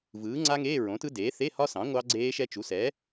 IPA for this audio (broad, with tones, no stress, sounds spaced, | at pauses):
v ɯː˩˥ ŋ͡ǀ a˦˥ ŋ eː˧˥˧ ɹ õ˩˥ t ɯ˦˥ d eː˩˥ θ e˧˥˧ h ɒ˦˥ s ɑ̃˩˥ ŋʷ ɑ˦˥ ɡ͡ǀ eː˦˥ ʃ ɛ˦˥ t͡ʃ u˩˥ s ɛ˩˥